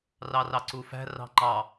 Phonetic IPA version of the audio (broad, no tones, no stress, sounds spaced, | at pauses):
r ɑ r ɑ ǀ u f æ̤ r ɑ̤ ŋ͡ǃ ɑ